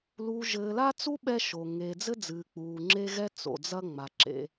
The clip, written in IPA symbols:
luː˨ʒɘː˨la˦t͡su˦ ɓɛ˦ʃo˨ ŋeː˨d͡zɘ˦d͡zɨː˨ k͡puː˨ŋ͡ǁe˦ɣɛ˦ t͡so̰˨d͡zɐ˦ ŋ͡ma˨ǁḛ˦

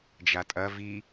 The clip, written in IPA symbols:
d͡ʒatʼɐ vi

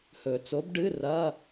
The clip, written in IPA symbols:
hɵ˨˩˦t͡so˨˥b ɖɨ˧˥˧ rɐ˧˥˧

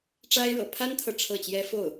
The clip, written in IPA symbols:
ʈ͡ʂa˥ɪ̯ɻɤ̰˨˩ pʰa˥nt̪ʰɤ˨ ʈ͡ʂʰɤ˥˩t͡ɕjɛ˥ fo˥˩ʊ̯

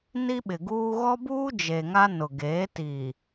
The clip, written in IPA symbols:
ni˦ɓɪ˨ɡuː˦ ɣɔ˦buː˦ d͡ʒe˨ŋa˦ nʊ˨ɡeː˨˦ ti˨

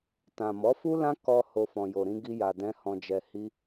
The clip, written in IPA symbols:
tã˨ mɔ˨˦fu˦lã˦ kɔ˧ ho˦fɔ̃˧jo˧ɾĩ˦ ɡi˦ja˧dɛ̃˦ hɔ̃˧d͡ʒɛ˧hi˦

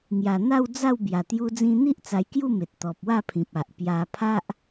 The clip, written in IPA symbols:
ŋja˨˩n̪a˥˧wd͡za˥˧w bja˨˩t̪ju˧d͡zĩ˧n̪i˦ʔ t͡sa˧jkju˥˧me˨t̚ t̪ɔ˨p̚wa˥˧pʰĩ˨p̚ a˨ʔpja˧ pʰa˦ʔ

